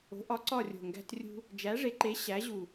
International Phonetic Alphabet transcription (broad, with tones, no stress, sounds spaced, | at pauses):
o̤˨˥ ʔ ɒ˨˥ ǀ ɒ˦˨ rʲ o̤˨˩ ŋ ɡ æ̤˦ t rʲ ṳ˦ | d͡ʒ æ˨˥ ʐ e˨˥ ǃ e˨˥ ɕ æ˨˥ ʑ u˨˩